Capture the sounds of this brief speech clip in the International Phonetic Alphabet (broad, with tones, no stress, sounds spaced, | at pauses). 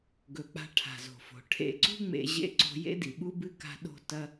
ɡ ɵ˩ k͡p a̤˨ ʈʰ a̤˩ z o̤˩ f o̤˩ ʈʰ ḛ˨ ǀ ṳ˦ ŋ͡m ḛ˨ ʑ ḛ˥ ǀ o̤˦ j ḛ˥ d i˩ ɓ u˥ b ɨ˥ k a̤˦ ɗ o̤˥ t ɐ˥